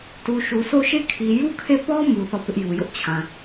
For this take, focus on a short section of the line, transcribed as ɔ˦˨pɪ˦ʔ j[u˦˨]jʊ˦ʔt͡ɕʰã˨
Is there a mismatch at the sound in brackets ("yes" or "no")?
yes